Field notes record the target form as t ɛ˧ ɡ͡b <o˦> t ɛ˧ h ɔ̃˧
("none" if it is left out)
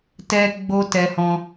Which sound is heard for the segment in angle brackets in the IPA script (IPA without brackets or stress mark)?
o˦